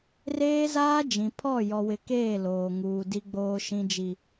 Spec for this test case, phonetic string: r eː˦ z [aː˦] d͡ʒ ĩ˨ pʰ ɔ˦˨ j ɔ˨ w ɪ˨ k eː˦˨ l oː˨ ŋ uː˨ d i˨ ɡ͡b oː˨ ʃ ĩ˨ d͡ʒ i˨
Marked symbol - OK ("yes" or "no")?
yes